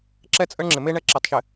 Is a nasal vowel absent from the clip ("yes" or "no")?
yes